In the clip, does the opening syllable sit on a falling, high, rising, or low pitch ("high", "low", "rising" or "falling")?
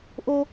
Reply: high